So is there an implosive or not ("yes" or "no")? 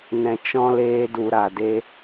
no